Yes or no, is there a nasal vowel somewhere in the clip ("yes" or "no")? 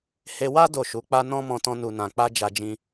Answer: yes